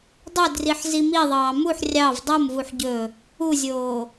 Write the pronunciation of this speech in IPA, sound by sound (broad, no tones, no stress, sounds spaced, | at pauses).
dˤ ø d r i ħ z i m i ðˤ ɑː m u ħ rʲ ɑ v dˤ o m v u ħ ɟ ɵ | u zʲ oː